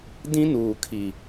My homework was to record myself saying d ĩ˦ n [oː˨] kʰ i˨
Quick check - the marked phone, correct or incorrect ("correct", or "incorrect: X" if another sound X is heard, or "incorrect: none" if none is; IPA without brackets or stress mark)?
incorrect: uː˨